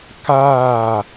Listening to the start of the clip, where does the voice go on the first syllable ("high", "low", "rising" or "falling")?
falling